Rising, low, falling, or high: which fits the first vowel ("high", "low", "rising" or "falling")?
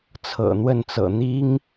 low